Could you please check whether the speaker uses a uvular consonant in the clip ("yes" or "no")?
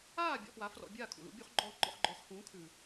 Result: yes